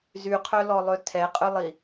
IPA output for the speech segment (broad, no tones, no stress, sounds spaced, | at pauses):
z y qʰ œ l ɔ lˠ ø tʰ ɛ qʼ ø lˠ i